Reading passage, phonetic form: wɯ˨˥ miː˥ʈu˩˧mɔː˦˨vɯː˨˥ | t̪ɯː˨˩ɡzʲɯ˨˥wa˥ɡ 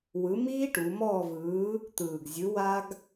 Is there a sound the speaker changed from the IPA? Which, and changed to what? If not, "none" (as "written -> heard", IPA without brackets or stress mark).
none